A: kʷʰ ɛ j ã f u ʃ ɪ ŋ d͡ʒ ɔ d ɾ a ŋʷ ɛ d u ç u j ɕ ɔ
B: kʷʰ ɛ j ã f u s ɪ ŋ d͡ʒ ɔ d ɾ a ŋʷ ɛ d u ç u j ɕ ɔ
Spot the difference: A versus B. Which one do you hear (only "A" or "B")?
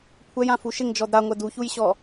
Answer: A